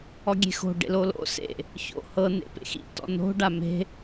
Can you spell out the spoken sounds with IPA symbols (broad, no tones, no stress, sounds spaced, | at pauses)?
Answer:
ɔ ɡʲ e̤ x o̤ ɖ ḛ l o l o̰ s ḛ | ç o̰ h ɤ n ḛ p ḛ x ḭ t ɔ̰ n o̤ ɖ a m e̤